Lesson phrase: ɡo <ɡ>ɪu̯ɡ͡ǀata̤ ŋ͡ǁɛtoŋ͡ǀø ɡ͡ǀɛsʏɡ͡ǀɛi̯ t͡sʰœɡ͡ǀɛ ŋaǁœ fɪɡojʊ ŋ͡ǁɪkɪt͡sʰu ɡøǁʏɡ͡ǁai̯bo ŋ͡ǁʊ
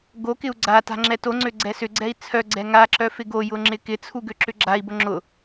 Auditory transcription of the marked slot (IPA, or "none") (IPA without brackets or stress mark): k